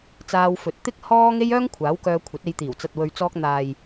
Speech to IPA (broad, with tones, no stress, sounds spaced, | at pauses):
t͡s aː˧ w f ɵ˨˥ t̚ t̪ ɪ˥ k̚ h ɔː˥ ŋ e˥ j œː˥ ŋ kʷʰ aː˨˥ w k œː˧ kʷʰ ɐ˨˥ t̚ e˧ j t̪ iː˨˩ w t͡s ɐ˨ t̚ w ɵ˨ ɥ t͡s ɔː˧ k̚ n̪ aː˨ j